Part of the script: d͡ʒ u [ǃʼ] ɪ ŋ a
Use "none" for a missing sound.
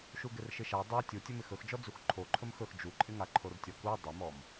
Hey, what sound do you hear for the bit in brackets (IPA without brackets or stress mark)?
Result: ǃʼ